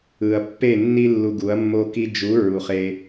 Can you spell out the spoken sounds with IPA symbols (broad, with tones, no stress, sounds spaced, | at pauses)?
ɯ˨ ɐ̯ pː e˦˨ nː i˦ lː u˧ ɡ u˨˦ ɐ̯ mː o˦ k i˦ d͡ʒ u˨˦ ɹ u˨ χ e˧